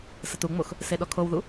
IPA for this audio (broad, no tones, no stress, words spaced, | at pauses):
sətuŋ͡mox | seɗɔkʰowðu